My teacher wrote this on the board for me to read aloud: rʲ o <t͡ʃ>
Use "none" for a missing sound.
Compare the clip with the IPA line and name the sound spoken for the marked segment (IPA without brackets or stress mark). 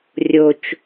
t͡ʃ